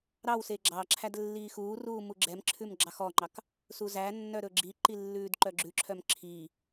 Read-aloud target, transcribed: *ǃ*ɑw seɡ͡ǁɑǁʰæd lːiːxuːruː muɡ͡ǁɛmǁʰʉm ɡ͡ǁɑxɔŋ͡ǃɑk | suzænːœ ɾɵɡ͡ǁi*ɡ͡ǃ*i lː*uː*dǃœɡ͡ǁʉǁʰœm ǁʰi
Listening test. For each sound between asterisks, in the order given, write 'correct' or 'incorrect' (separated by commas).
incorrect, incorrect, incorrect